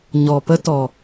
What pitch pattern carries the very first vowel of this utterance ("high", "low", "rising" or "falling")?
low